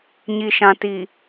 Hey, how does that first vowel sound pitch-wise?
low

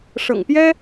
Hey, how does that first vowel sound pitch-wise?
low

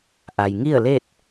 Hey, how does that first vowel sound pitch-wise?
low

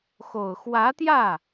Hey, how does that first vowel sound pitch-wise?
low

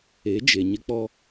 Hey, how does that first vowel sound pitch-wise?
rising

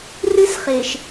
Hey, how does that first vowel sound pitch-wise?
high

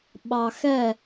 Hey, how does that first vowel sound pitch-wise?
low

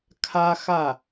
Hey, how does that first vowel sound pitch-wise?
high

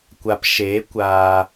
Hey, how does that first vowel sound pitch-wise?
low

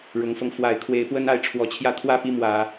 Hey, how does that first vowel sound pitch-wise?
rising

